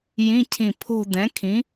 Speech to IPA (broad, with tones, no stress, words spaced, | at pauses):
jĩ˧˥˧cʰĩ˧˩pʰo̤˥˧ dɛ̃˩˥kʰĩ˩˥